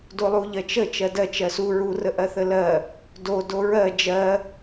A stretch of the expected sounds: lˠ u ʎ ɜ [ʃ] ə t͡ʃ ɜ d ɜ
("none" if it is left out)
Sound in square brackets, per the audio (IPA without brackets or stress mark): t͡ʃ